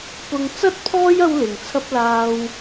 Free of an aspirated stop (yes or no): no